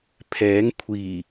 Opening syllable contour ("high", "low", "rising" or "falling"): rising